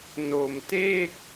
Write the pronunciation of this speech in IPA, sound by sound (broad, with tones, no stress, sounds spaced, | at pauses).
n o˧ m t e˥˩ k̚